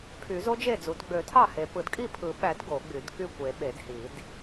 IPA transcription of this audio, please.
pʰ y˨˩˦ z o˦˥ d͡ʒ e˥˩ d͡z u˨˩˦ d ɡ͡b ø˨˩˦ tʰ ɑ˥˩ h e˨˩˦ p ɯ˨˩˦ d kʼ i˥˩ pʰ ɯ˨˩˦ ɓ æ˨˩˦ d ɡ o˨˩˦ ɡ͡b y˨˩˦ d k y˥˩ kʷ e˨˩˦ ɓ e˨˩˦ d h i˨˩˦ d

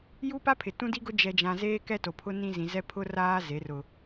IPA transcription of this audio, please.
j u˦ p a˦ pʰ ɪ˨ t ũ˦ d i˦ ɡ ʊ˦ d͡ʒ ɛ˨ d͡ʒ ã˨ z eː˦ k ɛ˦ t o˨ pʰ ʊ˦ n ĩ˦ z ĩ˨ z ɛ˦ pʰ ʊ˦ r aː˦ z e˨˦ r ʊ˦

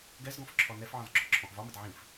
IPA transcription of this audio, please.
ɡ ɛ z ɡ ɔ̃ f ǁʰ ɔ n ɛ f ʕ ɔ̃ z ɡ͡ǁ ɔ ǁʰ ɔ̃ ʔ v ɒ m ə d ʕ ĩ f

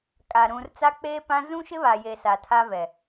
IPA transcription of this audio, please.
kʼ a˨ ɾ ũ˨ r t͡s a˦ k͡p eː˦ p ã˦ z ũ˦ ʃ ɪ˦ β a˨ j e˨ s a˨ tʰ a˦ v ɛ˨

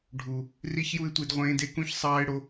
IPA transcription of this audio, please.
ɖʱ u˨ | r i˦ ç j u˦ ɪ̯ tʷ i˧ d ʁʷ ẽː˧ d e˧ k ũ˦˨ ç sˤ ɑː˦ ɪ̯ ɽ o˧

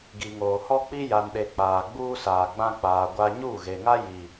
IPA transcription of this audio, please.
ɡ i˨ ŋ oː˨ h ɔ˦ k͡p i˦ j a˨ n ɗ e˨ k͡p aː˨ ɡ͡b uː˦ s aː˨ ɡ͡b ã˦ k͡p aː˨ ɡʷ a˦ ɲ uː˦˨ ɣ e˨ ŋ a˦ j i˨

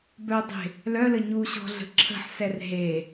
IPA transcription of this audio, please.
b œ dˤ e̤ | l œ l ə ɲ u ɕ ɔ̤ ɮ ə̤ ǁʰ ə̤ ħ s ɛ r ɦ e

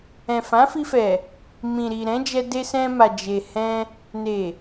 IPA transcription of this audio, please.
ɛ̃˨ f ã˨˦ f i˧ f ɛ˨ | m ĩ˨ ɾ i˨ ɾ ɛ̃˨˦ d͡ʒ ɛ˧ d e˧ s ɛ̃˧ m a˨ d͡ʒ e˨ h ɛ̃˧ | n e˨

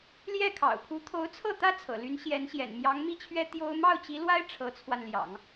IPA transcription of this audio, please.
l j ɛ˥˩ kʰ ɑ̰˨˩ ʊ̯ pʰ u˧˥ t̪ʰ o˧˥ ʊ̯ t͡sʰ ɤ˥˩ t̪ ä˥ t͡sʰ ɤ̰˨˩ l y˧˥ n ɕ j ɛ˧˥ n ɕ j ɛ̰˨˩ n m j ɑ˧˥ ŋ m i˥˩ t͡ɕʰ ɥ ɛ˥ t̪ j o˥ ʊ̯ m ɑ˥˩ ʊ̯ t͡ɕ i˧˥ l w a˥ ɪ̯ ʈ͡ʂʰ ɤ˧˥ t͡sʰ w a˧ n l j ɑ̰˨˩˦ ŋ

